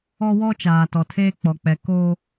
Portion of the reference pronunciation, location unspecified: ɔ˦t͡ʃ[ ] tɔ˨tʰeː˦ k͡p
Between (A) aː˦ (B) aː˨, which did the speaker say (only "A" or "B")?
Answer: B